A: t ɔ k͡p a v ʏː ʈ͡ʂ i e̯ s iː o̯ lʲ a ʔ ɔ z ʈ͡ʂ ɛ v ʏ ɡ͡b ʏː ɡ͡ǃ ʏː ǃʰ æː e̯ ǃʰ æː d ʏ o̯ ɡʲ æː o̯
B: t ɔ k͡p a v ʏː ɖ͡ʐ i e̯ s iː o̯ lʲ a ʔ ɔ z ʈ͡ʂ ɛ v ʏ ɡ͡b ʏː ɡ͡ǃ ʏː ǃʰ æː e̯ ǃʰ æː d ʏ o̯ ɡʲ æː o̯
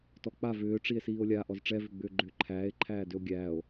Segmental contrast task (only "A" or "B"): A